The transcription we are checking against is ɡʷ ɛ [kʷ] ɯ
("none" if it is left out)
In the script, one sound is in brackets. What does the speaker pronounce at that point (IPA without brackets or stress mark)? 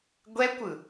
kʷ